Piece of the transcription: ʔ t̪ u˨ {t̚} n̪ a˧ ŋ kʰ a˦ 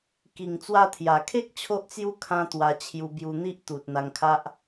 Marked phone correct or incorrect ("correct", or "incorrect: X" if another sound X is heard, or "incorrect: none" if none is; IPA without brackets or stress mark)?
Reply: correct